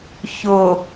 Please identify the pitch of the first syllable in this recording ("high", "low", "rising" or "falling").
low